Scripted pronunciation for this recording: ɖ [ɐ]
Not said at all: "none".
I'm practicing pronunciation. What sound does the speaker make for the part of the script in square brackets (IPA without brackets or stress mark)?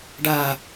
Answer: a